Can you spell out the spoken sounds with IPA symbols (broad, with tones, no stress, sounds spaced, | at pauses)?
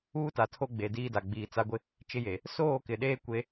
uː˦ t a˨ tʰ o˦ ɡ͡b eː˨ d iː˦ d a˨ ɡ͡b iː˨ t͡s a˦ ɡʷ ɪ˦ | t͡ʃ ɪ˦ j e˨ | s oː˦˨ k ɪ˨ ɗ eː˦ kʷ e˦